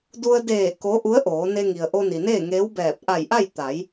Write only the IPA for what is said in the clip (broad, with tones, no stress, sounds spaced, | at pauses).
d u˧ ə̯ d eː˧˩ k o˧˥ ʔ u˧˥ ə̯ ʔ oː˩˧ n e˧ ŋ i˩ ə̯ ʔ o˧ n i˩ n eː˥˨ ŋ eː˧˥ w b ɛː˧˩ p̚ ʔ a˧˩ j ʔ a˥˨ j t̪ a˩˧ j